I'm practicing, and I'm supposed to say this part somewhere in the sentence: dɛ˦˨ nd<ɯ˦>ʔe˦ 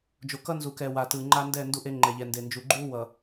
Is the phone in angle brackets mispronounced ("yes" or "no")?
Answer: yes